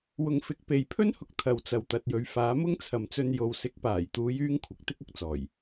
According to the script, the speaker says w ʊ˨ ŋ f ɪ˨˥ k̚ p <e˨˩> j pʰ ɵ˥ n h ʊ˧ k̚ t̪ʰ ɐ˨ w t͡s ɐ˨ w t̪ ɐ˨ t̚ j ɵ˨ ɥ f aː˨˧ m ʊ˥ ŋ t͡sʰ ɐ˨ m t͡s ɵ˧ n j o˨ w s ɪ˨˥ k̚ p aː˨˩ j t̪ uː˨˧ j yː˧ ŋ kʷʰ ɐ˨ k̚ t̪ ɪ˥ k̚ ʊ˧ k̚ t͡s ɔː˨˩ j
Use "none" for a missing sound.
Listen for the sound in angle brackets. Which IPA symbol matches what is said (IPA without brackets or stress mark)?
e˨